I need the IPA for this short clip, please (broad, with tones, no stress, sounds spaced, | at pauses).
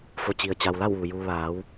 f o˩ t͡ɕ i˩ ə̯ t͡ɕ a˩ w l a˥˨ w ʋ u˩ j uː˧ ʋ aː˩˧ w